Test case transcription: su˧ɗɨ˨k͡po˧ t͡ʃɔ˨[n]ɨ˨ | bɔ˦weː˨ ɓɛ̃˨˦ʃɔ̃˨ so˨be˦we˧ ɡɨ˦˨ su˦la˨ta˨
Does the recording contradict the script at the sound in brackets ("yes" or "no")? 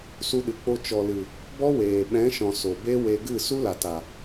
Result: yes